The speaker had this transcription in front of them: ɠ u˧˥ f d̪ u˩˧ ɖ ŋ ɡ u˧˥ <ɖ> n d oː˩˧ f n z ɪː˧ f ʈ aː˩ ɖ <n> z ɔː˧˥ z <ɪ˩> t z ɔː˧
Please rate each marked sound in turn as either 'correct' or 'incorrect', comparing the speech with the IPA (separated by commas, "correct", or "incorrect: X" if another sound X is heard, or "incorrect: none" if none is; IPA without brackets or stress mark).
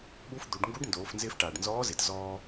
correct, correct, correct